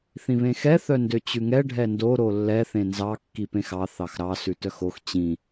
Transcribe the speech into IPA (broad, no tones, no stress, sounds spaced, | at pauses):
θ ĩ β ẽ x ɛ θ œ n d ø t͡ɕ ʉ ŋ ɛ ɖʱ ɛ n d o ɾ o lː ɛ θ ẽ n z ɑ kː i p ẽ x ɑ θ ɑ x ɾ ɑ s ʉ t œ x o x t͡ɕ ĩ